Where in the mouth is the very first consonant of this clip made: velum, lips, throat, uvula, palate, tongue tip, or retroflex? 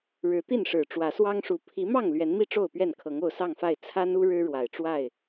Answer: retroflex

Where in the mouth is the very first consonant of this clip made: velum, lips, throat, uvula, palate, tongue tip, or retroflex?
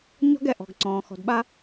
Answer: palate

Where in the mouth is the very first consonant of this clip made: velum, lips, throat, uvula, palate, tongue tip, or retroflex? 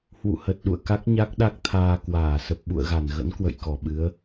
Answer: throat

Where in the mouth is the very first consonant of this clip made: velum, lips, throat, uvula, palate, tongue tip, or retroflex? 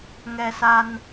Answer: velum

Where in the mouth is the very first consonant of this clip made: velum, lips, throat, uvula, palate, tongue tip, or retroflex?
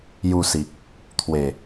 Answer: palate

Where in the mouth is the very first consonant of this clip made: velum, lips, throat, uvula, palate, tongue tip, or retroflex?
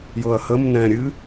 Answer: palate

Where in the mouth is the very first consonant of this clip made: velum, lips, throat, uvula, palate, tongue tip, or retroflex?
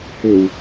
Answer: throat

